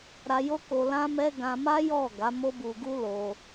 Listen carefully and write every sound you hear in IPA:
ɾa˧jo˦ko˧ lã˦mɛ˦ ɡã˧ ma˦jɔ˦˨ ɡa˨˦mo˦bu˧ɡu˦ lo˧

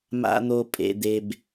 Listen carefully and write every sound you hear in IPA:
ma̰˦n̪o˦ pʼḛ˦d̪e˦b

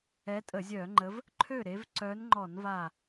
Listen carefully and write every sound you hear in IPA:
ɛ˨˦tʼə˧˩˧ zʲœː˧˩˧ŋ͡ǃə˨˦v | ǃʰø˥˩ɾe˨˦v ǀœ˨˦nŋ͡ǃɔ˧˩˧nva˧˩

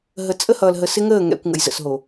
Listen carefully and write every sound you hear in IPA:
ɦə˨t͡sʼə˦ hʌː˨lɦə˨ sɪ˦ŋəː˦˨ ŋɛ̰˨kʷ ŋə̰˨jzə̰˨sɦo˨

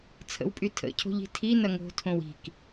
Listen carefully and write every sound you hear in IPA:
t͡sʰə̰wpʼy tʰə̰cʰo̤ʎ i̤tʰinɐ ŋo̤tʰõw i̤k

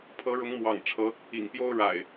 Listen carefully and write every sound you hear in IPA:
pʰɤ˨˦ɻʊ˨˦ŋ mwɑ̰˨˩ŋʈ͡ʂʰɤ˨˦ | ḭ˨˩ŋpjo˦ʊ̯ ɻa̰˨˩ɪ̯

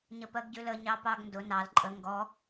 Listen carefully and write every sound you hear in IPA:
ɲəpɜɡɟʉlə ɲɑpɑɡndʊ nɑl ǃʼə ŋɡɔ

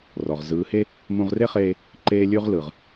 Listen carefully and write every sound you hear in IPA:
rɔ˨ʁ zɯː˨˦he˦ | mũ˧ʁre˦χeː˧ | ǃeː˦lʲʉ˦ʁlɯ˨ʁ

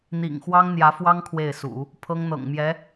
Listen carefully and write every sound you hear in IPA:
n̪ḭ˨˩ŋxwɑ˥ŋn̪jä˧˥fwɑ˥ŋ kʰwe˥˩ɪ̯sṵ˨˩˦ | pʰɤ˥ŋn̪ɤ̰˨˩ŋmjɛ˧˥

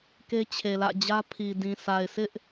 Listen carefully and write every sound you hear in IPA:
ke˦t͡ɕʰe˨lä̰˦˨d͡ʑä˦ pʰi˨ dĩ˨sa˨ɪ̯ sɪ˦ʔ

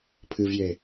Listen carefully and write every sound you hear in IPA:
pʰɨvje

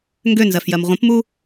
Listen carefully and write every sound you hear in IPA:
ŋɡønzɜfjɜm ʁʷə̃pmu

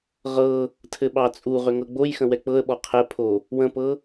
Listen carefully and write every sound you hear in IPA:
ʁɤ | tʰɘɓɑt͡sʼuʁʏ ŋɤɡ͡bojxə̃ wɛk͡pɤə̯ɓɔ qʰɛpʰo | wə̃pɤ

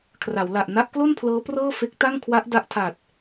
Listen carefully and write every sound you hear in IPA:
kʰra˩˦wla˨˩ʔ na˦˥ʔklo˥˩npʰlɤː˦˥ prɤː˥˩fe˦˥k̚ ta˥˩ŋkʰwa˦˥ʔ da˦˥ʔtʰa˨˩t̚

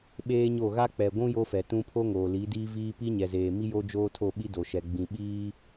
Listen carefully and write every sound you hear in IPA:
ɓeː˦ɲo˦˨ ɣa˦k͡pɛ˨ɡʷũ˦ jo˦fɛ˨ tũ˦ pʰo˦ŋoː˨ li˨˦diː˦viː˦ pi˦ɲɛ˨zeː˨mi˦ jo˦d͡ʒoː˦tʰo˦˨ɓi˦ do˨ʃɛ˨ ɡ͡bĩ˨ɓiː˦

